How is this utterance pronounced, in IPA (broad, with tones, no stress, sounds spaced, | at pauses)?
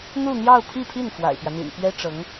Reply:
n̪ u˥˧ n̪ j ɑ˥˧ ʊ̯ pʰ i˥˧ pʰ i˥˩ n f w a̰˨˩ ɪ̯ p j ä˦ n̪ ḭ˨˩ n p ɥ ɛ˥ ʈ͡ʂ ɤ˧˥ ŋ